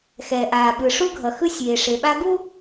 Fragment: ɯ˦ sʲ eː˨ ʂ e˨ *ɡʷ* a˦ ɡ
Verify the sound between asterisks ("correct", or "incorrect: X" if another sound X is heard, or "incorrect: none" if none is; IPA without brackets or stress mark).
incorrect: ɓ